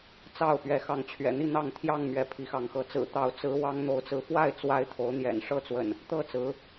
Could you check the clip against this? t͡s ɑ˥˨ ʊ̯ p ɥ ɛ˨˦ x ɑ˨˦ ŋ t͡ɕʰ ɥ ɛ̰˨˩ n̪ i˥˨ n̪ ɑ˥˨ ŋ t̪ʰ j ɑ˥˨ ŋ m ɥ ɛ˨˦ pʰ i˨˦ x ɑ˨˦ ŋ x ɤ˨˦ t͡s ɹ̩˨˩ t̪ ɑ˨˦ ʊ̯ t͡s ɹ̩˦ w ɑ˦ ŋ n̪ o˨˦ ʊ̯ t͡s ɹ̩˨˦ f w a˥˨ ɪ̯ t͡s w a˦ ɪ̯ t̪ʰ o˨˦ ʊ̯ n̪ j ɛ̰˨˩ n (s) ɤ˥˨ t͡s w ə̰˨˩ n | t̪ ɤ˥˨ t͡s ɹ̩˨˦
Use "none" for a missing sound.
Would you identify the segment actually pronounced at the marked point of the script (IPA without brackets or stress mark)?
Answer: ʂ